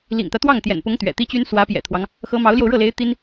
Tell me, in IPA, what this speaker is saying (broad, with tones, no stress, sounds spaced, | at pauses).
l ḭ˨˩ ŋ t̪ ä˦ t̪ w ɑ˥˩ ŋ t̪ j ɛ̰˨˩ n p ʊ˧˥ ŋ t̪ ɥ ɛ̰˨˩ t̪ i˥ t͡ɕ y˥ n s w ä˧˥ p j ɛ̰˨˩ t̪ʰ w ɑ˦ ŋ | x ɤ˧˥ m ɑ˧˥ ʊ̯ l j o˧ ʊ̯ ɻ ɤ˥˩ l e˧˥ ɪ̯ t̪ i˥ n